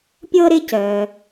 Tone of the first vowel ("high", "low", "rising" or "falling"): high